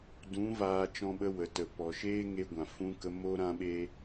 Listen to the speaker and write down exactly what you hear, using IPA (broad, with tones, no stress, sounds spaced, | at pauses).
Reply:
d ũ˨˦ v aː˧ t͡ʃ ɔ̃˧ ɓ ə˧ w ə˨ t ə˨ p ɔ˨ ʃ eː˦ ŋ e˧ ɡʷ ã˨ f ũ˧ k ə˧ m o˦ ɾ ã˦ ɓ eː˦